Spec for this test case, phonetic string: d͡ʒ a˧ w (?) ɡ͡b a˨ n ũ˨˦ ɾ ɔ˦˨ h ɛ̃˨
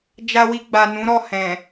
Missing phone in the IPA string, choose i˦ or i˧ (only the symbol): i˧